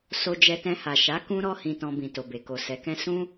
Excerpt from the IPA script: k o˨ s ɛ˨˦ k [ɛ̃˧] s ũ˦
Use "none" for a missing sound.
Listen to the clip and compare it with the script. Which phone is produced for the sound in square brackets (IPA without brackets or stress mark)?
ɛ̃˦